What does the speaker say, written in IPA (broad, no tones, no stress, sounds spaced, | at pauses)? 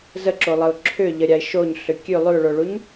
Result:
z ə ǁ o lˠ ə ʊ̯ ǁʰ ʏ ʎ ə ɾʲ a ɪ̯ ʃ o ɲ ɬ ʏ kʲ ʉ lˠ ʉ ʊ̯ ɭ o ɭ u ɲ